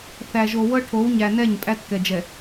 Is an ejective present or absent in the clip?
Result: present